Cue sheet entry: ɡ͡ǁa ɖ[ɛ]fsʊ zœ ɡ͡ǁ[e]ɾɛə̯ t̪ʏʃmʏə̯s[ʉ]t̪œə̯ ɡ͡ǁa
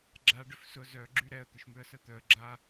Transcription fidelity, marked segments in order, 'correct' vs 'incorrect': incorrect: ʏ, incorrect: y, incorrect: ə

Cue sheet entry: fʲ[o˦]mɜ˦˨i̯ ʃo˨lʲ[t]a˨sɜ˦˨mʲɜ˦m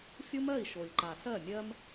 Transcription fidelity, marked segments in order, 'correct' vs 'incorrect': correct, incorrect: ǃ

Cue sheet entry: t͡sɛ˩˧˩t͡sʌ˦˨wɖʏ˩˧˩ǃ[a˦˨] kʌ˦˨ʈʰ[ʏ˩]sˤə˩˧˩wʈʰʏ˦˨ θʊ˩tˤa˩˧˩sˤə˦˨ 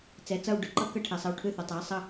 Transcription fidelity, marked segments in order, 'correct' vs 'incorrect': incorrect: ʌ˦˨, incorrect: ɛ˩

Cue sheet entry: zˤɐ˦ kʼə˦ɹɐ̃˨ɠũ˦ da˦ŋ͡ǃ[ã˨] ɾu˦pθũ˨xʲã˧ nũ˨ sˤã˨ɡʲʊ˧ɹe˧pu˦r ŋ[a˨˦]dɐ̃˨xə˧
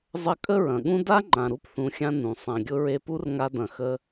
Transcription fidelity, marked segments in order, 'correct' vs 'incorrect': correct, incorrect: a˧

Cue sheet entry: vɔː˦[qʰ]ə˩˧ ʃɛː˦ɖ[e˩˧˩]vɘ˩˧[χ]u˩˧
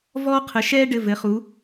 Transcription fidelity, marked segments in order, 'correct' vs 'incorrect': correct, incorrect: ɘ˩˧˩, correct

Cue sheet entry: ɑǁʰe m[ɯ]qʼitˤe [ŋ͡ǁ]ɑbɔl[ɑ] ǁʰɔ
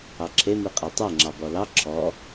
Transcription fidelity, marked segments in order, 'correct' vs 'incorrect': correct, correct, correct

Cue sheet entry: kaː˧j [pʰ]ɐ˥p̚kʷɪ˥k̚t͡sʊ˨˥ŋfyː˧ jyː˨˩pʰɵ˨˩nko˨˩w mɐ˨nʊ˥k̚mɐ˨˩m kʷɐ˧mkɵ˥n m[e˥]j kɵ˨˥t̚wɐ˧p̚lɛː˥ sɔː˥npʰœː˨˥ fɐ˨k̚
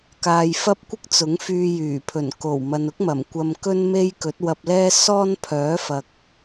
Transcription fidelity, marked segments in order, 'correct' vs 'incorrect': incorrect: f, correct

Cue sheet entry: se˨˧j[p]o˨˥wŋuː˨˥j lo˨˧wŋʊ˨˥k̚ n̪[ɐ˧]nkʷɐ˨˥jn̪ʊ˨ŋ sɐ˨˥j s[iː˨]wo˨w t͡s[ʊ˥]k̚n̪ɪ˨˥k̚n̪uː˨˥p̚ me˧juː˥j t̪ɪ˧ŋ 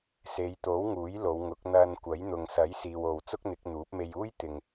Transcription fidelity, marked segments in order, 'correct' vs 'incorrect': incorrect: t̪, correct, correct, correct

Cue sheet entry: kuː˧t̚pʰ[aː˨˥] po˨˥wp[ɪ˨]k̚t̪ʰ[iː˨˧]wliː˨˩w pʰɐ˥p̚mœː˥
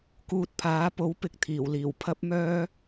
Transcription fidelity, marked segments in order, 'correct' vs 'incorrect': correct, correct, incorrect: iː˨˩

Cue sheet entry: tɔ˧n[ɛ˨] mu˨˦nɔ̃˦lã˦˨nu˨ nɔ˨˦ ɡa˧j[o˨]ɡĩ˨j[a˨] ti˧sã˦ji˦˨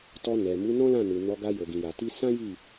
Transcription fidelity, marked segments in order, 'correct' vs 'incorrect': correct, correct, correct

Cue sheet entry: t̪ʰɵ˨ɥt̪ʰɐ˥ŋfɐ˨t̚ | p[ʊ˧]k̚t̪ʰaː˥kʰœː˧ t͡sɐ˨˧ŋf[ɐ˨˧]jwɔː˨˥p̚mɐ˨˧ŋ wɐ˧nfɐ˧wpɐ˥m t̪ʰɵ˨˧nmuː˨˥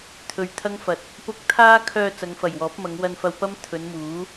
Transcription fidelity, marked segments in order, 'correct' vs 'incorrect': correct, incorrect: ɐ˨˩

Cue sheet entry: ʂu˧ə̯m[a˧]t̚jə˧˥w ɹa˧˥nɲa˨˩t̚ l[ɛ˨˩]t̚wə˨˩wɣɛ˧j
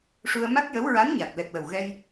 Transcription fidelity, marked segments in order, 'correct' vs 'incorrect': incorrect: a˦˥, correct

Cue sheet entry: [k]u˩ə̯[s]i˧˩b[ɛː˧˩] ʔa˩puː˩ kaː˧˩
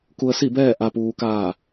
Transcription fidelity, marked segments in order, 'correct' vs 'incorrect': correct, correct, correct

